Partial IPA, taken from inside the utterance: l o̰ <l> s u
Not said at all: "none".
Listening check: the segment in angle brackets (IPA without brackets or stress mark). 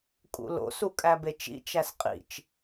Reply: none